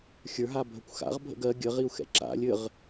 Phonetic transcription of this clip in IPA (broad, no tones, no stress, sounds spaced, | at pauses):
xʲ ə˞ ɦ a bʱ ə kʷ x a̰ ʁ bʱ ə̰ ɡ ɜ ɡʲ ə ʁ i u̯ x ɛ̰ ǁ a̰ lʲ ɘ ʁ